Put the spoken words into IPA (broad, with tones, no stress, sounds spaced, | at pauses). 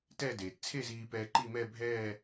t ɛ˥˧ d eː˩ t t͡sʰ e˥˧ z iː˧ p ɛː˧ ǃ i˥˧ m ɛ˥˧ bʱ ɛː˥˧